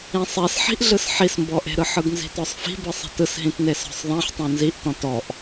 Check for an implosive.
absent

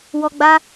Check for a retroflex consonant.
absent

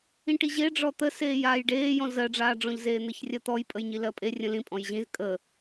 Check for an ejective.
present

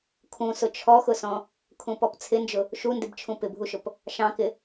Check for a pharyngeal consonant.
absent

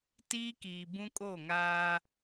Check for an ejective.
present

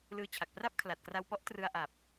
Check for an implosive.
absent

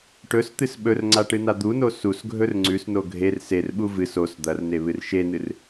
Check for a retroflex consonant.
present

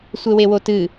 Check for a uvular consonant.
absent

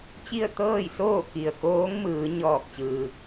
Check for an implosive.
absent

